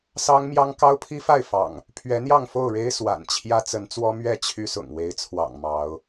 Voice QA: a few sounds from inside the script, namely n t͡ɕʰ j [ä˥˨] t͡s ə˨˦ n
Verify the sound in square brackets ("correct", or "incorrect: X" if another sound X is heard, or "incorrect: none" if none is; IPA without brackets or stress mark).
incorrect: ä˦